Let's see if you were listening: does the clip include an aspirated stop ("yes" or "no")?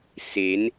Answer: no